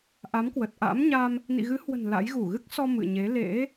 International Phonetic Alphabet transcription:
ʔ a˨˦ m k w ə˨˩ t̚ ʔ a̰˧˥ m ɲ a˧ m | n ḭ˧˨ ɣ ɨ˨˦ h w ə̤˨˩ n l a̰˧˥ j ɣ u˧˩ ɣ ɨ˦˥ k̚ s ɔ˧ m ɨ̰˧˨ ɲ e˨˦ l ḛ˧˥

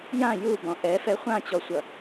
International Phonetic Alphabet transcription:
j ã j u b ɔ̃ ʔ ɛ f ɛ χʷ ã t͡ɕ ɔ sʷ ʌ

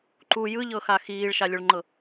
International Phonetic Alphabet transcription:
ǃ u j ɯ ʎ ɤ x a x iː ɭ ʃ a lʲ o ɭ ŋ͡ǃ ɤ

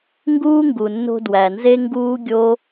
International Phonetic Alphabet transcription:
ŋ ɡ uː˦ ŋ ɡ u˨ nː o̤˧ d w æ˨ n z e˦ ŋ ɡ uː˦ ɡʲ o˦

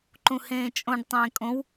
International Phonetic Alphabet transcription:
ǃ ũ h ẽː t͡ʃʼ õ ɖ tˤ ẽː kʼ õ w

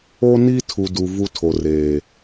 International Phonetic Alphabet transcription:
o˦ n i˦ tʰ u˨ d u˨ v u˦ tʰ o˨ r eː˨

